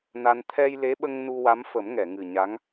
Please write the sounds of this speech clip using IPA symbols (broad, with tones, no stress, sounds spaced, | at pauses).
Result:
n a˧ n t̪ʰ ɛ˧ j l e˧˥ ɓ ə˧ ŋ n u˧ w a˧˥ m f ə˨˩˦ m ŋ ɛ˨˩˨ ŋ ɨ˨˩ ɲ a˧˥ ŋ